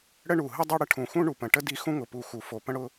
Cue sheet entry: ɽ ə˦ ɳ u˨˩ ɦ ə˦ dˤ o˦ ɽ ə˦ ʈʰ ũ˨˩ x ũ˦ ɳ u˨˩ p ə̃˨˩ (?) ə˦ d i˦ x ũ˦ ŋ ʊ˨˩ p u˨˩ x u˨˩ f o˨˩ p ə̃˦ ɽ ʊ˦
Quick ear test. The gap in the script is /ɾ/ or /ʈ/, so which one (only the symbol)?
ʈ